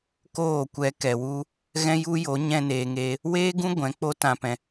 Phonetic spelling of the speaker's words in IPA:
koː˦˨kʷɛ˧kɛ˨wu˦ | ɣɛ̃˦ju˦jo˨˦ ɲɛ̃˧neː˨ŋeː˧ | weː˦ɡũ˦ ɡʷɛ̃˨˦k͡po˦ tã˧pɛ̃˧

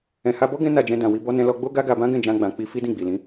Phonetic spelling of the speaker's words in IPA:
ɛ̃˨ha˧bɔ˦ ɡɛ̃˦ na˦˨ d͡ʒɛ̃˧dã˨wi˧ bɔ˧nɛ̃˧ lɔ˧ɡ͡bo˦ ɡa˦ɡa˧bã˦ ɡɛ̃˦˨d͡ʒã˧ɡ͡bã˨k͡pi˧ fi˦dĩ˦˨ɡ͡bi˨lĩ˨˦

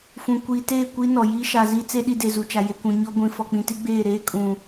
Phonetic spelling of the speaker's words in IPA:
fũ˨kʷiː˨teː˦˨ kʷi˦ nɔ˨jiː˦ ʃaː˨zi˦t͡se˦ ɗi˦de˨zu˨t͡ʃa˨ je˨kʷũ˨ ɲɔ˦ɡʷĩ˨ fɔ˨k͡pĩ˨ti˦ɡ͡beː˦˨ ɾeː˦kʼũ˨

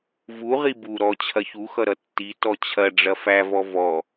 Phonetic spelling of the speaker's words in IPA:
vu ʁibu ɾɔ t͡ɕʰɐçuxʌɾʌ tːi tɔt͡ɕʰɐ ɖ͡ʐɐfævɔ vɔ

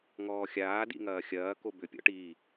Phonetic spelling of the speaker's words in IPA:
ŋɔːxʲaː dḭŋɐːxʲɐː kobʏ pʲɔ̰ʈiː

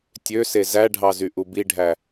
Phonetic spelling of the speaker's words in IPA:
tʲøse zæɖʱɑzyʔu biɖʱæ

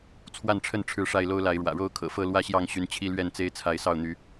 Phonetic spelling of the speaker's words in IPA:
t͡sʰwa˥˨nʈ͡ʂʰə˥˨n ʈ͡ʂʰɻ̩˥˨ʂa˥˨ɪ̯lo˦ʊ̯la˨˦ɪ̯ ɻwä̰˨˩ɻo˥˨ʊ̯kʰɤ̰˨˩fɤ˥˨ lwä˥˨ɕjɑ˥˨ŋɕy˨˦n t͡ɕʰi˦lɥɛ˥˨nt͡se˦ɪ̯ t͡sʰa˨˦ɪ̯sɑ˥˨ʊ̯ n̪y˨˦

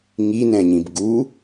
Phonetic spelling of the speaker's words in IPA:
ŋinɛ̃ɲĩb ɡu

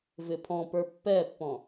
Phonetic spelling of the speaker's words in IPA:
vɪpʰɔ̃pə˞ pːɛpːɔ̃

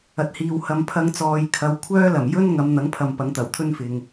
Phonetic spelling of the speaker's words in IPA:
ɐ˨t̚hiː˨w hɐ˨m pʰɐ˧ŋt͡sɔː˨j kʰɐ˨˧w kʷʰœː˥lɐ˨˩m jɵ˥n ŋɐ˨˧mn̪ɐ˨˥ŋpʰɐ˨m pɐ˨˥ŋt̪ɐ˨˩wt̪ʰɵ˥nfɪ˨ŋ

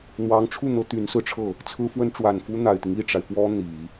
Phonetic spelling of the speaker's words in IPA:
n̪wɑ˧˥ŋʈ͡ʂʰu˥˩n̪ɤ˧˥ t̪y˧˥nsɹ̩˧ʈ͡ʂʰɤ˥˩ | t͡sʰɹ̩˥fwə˥n ʈ͡ʂwa˨˩nfu˥n̪a˨˩ɪ̯t̪i˦ŋ i˥˩ʈ͡ʂa˩ɪ̯ fwɔ˥ n̪i˨˩˦

